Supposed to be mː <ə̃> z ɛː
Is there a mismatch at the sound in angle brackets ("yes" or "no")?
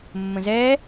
no